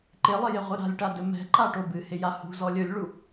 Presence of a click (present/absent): present